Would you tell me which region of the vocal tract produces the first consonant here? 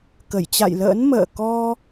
velum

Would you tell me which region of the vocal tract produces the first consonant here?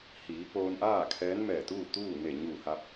throat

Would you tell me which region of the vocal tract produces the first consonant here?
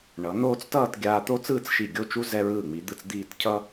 retroflex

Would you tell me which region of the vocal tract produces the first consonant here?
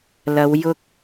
tongue tip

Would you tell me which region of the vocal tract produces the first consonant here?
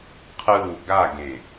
uvula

